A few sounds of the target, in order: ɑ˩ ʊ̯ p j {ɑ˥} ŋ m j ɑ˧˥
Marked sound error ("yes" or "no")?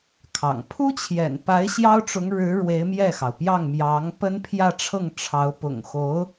yes